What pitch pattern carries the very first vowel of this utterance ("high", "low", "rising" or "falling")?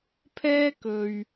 high